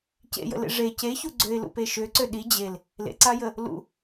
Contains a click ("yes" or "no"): yes